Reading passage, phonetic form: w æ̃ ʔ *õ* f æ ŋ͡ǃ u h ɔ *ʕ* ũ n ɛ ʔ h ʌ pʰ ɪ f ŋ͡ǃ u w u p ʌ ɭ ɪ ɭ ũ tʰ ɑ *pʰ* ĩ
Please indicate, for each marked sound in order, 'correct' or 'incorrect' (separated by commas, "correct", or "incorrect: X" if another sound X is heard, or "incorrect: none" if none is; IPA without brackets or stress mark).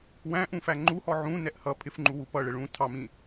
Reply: incorrect: ũ, correct, incorrect: m